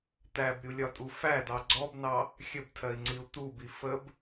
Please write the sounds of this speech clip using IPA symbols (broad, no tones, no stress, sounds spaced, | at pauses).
t̪ æ b ɾʲ u lʲ ɒ tʼ u f æ d̪ ɑ ɡ͡ǀ ɔ b n ɑ | xʲ ə b tʰ ɜ i̯ ŋ͡ǀ i u̯ t̪ u b i f ə b